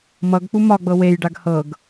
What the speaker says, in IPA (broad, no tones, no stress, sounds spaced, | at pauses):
m ʌ ɡ k͡p u m ɒ ɡ͡b ɤ w e j ɖ a ɡ h ɤ ɡ